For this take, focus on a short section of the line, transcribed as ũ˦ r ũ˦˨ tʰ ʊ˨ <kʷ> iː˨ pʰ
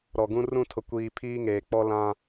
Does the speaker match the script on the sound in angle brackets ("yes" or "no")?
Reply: yes